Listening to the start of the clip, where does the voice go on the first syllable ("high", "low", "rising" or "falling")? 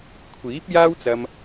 rising